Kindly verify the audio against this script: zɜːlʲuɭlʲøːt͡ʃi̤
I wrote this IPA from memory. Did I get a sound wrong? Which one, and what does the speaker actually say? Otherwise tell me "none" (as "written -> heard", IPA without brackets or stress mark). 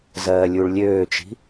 none